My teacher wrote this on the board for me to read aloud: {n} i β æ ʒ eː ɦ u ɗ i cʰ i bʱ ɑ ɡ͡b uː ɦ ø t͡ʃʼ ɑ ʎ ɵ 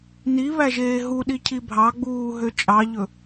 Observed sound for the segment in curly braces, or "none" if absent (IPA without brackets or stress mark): n